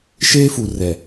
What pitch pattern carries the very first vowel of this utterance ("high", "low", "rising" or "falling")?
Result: high